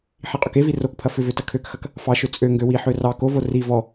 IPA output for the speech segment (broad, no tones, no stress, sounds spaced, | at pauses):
ħ i qʼ ʏ k e v i r o k pʰ ɐ f ʏ v ø t ɐ kʰ ø k x ɐ k | f ɑ ʃ ø t͡sʼ ø ŋ ɡ ø w i ħ ø r ɑ k o v o r i v ɔ